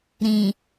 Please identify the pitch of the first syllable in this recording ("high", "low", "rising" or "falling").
low